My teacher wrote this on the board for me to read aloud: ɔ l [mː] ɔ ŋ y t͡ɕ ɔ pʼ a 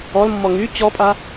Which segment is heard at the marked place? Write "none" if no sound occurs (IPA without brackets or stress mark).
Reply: mː